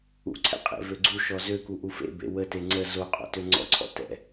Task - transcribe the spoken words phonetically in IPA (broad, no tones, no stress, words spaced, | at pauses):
ṵǀʰɛ̰ qʼḛvøɡ͡ǀuʃɔ zøku ʔufḛbḛ wəte ŋ͡ǀə zoqʼɔ̰ tøŋ͡ǀɔ̰ǀʰɔ̰ tɛ̰